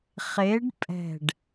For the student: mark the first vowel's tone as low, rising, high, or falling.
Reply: rising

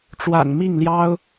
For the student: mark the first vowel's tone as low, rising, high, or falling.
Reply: low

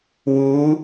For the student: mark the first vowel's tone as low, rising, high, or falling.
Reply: rising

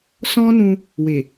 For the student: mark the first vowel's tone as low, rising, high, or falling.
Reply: high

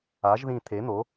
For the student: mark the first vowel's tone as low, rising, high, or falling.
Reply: rising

